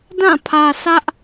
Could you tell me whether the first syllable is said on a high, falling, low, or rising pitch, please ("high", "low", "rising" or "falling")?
falling